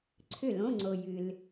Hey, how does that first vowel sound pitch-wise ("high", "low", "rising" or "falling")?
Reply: falling